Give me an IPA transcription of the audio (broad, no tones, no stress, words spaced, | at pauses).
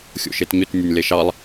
xʲo̰ʃetɲʏt nʲanʲleʃɑlˠ